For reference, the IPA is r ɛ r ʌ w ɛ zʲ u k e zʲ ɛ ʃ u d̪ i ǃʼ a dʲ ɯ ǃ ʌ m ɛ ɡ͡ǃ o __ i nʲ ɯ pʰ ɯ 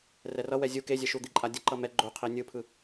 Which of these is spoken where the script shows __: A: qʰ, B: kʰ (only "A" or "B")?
A